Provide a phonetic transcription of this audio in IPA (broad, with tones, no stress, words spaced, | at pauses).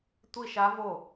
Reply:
tʷi˥˧ʃa˦˥vo˥˩